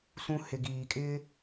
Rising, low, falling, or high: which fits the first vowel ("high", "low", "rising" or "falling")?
low